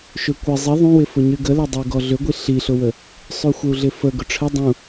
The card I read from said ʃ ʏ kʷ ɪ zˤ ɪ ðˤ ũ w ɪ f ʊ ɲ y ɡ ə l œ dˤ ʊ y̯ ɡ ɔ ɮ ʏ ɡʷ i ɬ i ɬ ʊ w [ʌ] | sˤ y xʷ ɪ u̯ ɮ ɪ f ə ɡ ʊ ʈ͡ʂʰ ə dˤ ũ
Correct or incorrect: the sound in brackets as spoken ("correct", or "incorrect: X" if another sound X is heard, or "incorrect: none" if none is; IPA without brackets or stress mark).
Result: incorrect: ə